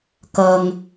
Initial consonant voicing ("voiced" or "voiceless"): voiceless